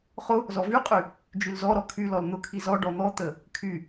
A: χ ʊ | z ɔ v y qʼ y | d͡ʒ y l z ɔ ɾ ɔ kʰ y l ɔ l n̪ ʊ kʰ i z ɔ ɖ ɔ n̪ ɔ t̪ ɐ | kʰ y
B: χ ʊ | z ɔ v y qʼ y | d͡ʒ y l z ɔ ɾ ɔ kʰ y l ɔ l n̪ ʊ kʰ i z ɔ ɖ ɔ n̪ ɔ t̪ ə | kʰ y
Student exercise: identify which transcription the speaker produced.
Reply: B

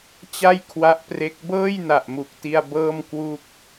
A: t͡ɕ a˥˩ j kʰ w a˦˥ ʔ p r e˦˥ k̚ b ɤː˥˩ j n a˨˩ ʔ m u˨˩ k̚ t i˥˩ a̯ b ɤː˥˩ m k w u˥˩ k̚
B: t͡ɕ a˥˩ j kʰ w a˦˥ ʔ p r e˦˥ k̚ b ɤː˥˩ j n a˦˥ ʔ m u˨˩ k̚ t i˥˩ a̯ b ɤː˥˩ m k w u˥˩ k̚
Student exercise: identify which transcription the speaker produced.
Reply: A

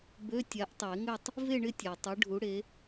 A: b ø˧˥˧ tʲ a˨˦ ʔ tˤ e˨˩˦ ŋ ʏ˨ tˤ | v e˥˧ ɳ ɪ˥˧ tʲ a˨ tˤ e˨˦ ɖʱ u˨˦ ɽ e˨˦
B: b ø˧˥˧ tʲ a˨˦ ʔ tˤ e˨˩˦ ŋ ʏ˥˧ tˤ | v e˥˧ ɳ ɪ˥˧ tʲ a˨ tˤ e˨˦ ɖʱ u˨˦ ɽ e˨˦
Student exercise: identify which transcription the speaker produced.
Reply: B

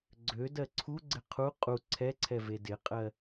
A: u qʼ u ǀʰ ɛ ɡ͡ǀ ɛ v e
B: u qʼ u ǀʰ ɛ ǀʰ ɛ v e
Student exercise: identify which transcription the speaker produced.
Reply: B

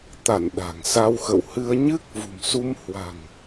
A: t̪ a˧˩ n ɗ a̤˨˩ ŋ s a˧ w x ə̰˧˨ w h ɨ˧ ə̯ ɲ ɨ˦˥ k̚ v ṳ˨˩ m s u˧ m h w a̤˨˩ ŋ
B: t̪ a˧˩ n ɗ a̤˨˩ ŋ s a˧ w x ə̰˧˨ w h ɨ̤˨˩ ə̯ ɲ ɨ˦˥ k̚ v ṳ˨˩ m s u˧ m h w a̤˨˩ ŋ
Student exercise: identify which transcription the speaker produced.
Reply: A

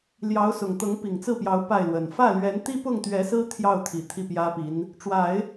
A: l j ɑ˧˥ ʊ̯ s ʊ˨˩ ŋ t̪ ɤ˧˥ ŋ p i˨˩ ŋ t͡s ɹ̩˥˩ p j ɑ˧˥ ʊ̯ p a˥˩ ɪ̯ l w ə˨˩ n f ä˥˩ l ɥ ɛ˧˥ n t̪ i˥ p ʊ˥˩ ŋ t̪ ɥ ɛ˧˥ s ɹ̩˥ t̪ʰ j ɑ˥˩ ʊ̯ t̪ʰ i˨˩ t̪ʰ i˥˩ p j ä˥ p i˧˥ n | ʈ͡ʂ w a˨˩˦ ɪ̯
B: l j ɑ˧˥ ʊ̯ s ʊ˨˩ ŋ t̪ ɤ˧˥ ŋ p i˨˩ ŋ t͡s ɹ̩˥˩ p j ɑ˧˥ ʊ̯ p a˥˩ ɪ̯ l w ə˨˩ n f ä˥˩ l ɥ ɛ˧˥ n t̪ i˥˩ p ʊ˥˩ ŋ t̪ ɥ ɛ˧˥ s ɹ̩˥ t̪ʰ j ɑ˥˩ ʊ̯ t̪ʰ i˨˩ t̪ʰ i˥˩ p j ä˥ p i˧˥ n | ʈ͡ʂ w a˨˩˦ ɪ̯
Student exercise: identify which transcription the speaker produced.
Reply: A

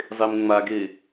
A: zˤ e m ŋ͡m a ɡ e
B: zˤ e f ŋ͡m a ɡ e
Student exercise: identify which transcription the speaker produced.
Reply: A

